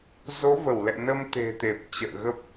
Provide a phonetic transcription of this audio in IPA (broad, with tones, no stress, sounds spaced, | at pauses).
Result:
z o˨˦ v ə˧˩ w l ɛ̰˧˨ n ə˧ m t̪ e̤˨˩ t̪ e˨˩ p̚ t͡ɕ ə̰ː˧˨ ɣ ə˦˥ p̚